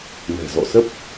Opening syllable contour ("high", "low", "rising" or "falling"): low